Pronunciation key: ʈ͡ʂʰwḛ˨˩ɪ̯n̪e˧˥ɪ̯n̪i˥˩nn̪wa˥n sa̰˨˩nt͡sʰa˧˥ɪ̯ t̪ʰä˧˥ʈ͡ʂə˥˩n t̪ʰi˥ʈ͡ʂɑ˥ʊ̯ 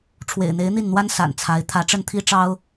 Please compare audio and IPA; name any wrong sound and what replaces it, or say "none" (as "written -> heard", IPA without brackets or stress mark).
none